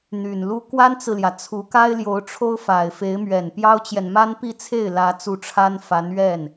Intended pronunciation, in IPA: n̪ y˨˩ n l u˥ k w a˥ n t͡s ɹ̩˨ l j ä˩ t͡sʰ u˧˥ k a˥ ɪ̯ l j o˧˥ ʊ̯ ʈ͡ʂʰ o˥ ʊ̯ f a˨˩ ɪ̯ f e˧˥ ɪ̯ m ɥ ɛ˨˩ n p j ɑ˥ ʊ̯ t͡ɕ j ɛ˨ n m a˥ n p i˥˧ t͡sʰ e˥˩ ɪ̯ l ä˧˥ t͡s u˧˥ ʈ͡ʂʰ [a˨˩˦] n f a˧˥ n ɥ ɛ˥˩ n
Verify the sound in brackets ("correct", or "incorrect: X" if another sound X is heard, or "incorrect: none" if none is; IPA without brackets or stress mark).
incorrect: a˥